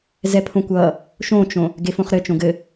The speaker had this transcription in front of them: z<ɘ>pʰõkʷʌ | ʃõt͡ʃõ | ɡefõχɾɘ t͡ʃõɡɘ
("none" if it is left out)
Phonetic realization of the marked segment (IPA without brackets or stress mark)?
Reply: ɛ